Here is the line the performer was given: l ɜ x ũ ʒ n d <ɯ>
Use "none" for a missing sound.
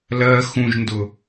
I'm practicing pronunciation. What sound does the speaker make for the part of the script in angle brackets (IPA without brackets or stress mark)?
ʊ